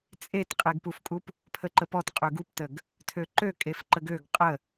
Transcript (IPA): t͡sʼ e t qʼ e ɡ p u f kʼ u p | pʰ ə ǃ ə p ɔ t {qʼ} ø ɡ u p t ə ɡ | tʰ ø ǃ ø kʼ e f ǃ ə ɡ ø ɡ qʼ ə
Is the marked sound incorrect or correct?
correct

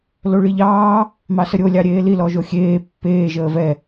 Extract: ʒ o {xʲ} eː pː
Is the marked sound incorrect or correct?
correct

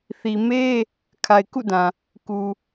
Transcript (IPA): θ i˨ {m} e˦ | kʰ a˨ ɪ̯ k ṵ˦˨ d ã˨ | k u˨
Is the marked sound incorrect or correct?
correct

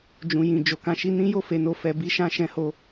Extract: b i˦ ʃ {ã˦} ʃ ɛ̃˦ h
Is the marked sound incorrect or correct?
correct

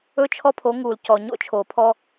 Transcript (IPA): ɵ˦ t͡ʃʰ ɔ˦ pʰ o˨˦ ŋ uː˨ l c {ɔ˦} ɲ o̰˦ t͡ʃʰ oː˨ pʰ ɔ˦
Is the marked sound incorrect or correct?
incorrect: ɔ˨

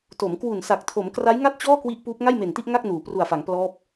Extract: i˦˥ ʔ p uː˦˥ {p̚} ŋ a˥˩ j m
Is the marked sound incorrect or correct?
correct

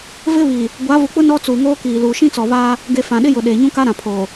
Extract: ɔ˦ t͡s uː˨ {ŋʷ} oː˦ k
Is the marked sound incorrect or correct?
incorrect: ŋ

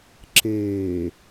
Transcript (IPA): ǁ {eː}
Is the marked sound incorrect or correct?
correct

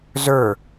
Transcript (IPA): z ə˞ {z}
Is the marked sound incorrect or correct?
incorrect: none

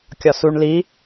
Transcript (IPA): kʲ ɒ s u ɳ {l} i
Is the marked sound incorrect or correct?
correct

